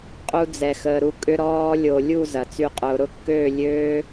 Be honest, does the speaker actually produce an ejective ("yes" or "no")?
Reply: yes